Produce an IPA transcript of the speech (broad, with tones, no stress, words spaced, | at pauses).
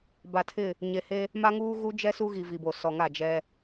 ba˨tʰɪ˦˨ | ɲe˨he˦ | ma˦ ŋuː˦ɣu˦d͡ʒɛ˦ su˦ɣi˨ vi˨bo˨sɔ˨ŋa˦˨ d͡ʒɛ˦